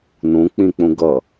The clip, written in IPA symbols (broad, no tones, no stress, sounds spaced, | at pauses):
n ũ k͡p ĩ k͡p ũ ɡ ʌ